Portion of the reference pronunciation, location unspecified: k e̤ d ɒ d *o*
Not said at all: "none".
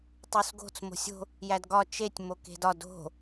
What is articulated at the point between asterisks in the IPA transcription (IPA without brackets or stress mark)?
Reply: o̤